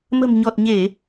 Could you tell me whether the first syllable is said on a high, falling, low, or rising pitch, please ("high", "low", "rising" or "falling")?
low